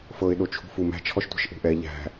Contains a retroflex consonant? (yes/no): no